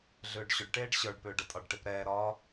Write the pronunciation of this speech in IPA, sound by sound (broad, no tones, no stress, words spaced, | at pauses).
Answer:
ɮʏːɖɕʏɖʈeːɖ ɕə˞ɖpʏː ɖətʼɒɖʈep ɾɛːɾɒː